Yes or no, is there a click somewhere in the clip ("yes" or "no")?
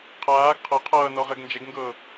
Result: no